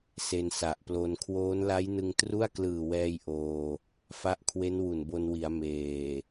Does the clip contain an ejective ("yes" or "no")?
no